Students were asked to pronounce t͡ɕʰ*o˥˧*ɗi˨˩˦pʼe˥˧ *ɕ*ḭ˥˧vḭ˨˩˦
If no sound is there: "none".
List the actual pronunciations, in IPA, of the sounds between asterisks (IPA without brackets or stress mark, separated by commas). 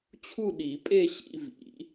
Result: u˥˧, ɕ